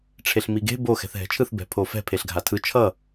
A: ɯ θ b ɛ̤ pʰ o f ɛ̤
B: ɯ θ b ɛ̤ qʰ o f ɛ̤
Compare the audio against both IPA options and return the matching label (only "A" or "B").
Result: A